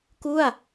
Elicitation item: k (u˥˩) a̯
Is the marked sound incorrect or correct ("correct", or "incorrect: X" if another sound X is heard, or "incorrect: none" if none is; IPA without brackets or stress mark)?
correct